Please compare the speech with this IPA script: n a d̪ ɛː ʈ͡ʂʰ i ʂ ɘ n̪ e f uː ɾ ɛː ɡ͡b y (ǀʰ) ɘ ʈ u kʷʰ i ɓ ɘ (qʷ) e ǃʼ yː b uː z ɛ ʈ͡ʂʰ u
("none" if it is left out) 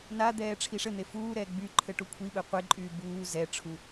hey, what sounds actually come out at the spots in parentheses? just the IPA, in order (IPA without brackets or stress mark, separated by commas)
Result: ǃʰ, qʷ